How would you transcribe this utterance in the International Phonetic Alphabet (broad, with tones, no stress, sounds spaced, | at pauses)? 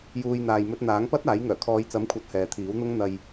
j uː˨ j n̪ aː˨ j m ɵ˧ t̚ n̪ aː˨˥ ŋ p ɐ˥ t̚ aː˨˥ j ŋ œː˨˩ kʰ ɔː˨˧ j t͡s ɐ˨˥ m kʷʰ ɐ˨˥ t̚ h ɛː˨ t̪ʰ iː˨˥ w n̪ ʊ˥ ŋ n̪ ɐ˧ j